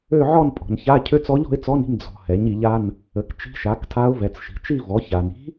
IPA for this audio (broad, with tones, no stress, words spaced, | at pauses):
ø˥˧ʕɔ˥˧npʼɔ̤˨n ça˧˥˧ cʰø˧˥t͡sɔ˧˥ʎ ɔ̤˧˥ɪ̯t͡sɔ˧˥˧n i̤˥˧m d͡zɔ̤˨ hɛ˩˥ɲi˩˥ʎa˧˥˧n | ə˩˥kt͡ʃi̤˧˥ʃa˩˥ktʰa˧˥ʊ̯ vɛ˨t͡sʃi̤˩˥ t͡ʃi˥˧vɔ˩˥ ça˨n i̤˧˥